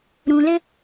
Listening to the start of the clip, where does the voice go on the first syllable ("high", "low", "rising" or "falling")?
low